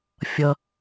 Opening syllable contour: high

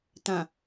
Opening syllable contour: low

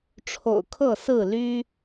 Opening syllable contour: low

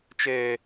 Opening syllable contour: high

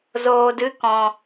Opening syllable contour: low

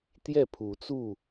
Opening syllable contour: falling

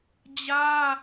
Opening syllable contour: high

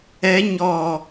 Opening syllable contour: rising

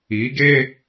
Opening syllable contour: rising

